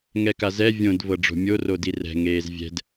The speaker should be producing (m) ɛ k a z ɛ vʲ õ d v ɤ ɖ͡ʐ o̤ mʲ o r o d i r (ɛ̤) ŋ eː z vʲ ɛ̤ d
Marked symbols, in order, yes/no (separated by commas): no, yes